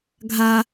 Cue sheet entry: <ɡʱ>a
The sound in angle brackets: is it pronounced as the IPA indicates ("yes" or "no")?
yes